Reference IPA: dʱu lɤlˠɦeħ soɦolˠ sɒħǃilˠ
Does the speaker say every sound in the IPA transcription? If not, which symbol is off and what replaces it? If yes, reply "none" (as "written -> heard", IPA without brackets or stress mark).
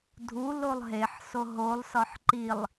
ɤ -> o